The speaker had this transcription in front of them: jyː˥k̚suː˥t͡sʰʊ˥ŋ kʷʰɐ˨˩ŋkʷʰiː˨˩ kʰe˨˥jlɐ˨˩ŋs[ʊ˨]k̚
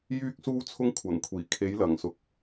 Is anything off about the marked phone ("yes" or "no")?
no